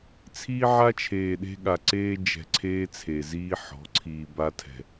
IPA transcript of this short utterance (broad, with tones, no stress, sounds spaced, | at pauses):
t͡sʰ iː˦ ʕ a˦ t͡ʃʰ eː˨ ɗ e̤˦ ɠ a˨ ǀ eː˦ d͡ʒ ɛ̤˨ ǀʰ eː˦ t͡sʰ e˨ z iː˦ ħ ɔ̤˨˦ ǀʰ iː˨ b a˦ tʰ ɛ̤˨